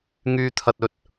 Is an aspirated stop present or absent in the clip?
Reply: present